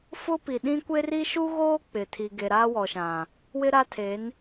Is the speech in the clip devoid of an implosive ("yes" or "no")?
no